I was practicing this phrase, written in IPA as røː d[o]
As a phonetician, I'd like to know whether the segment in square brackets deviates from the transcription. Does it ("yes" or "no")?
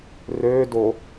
no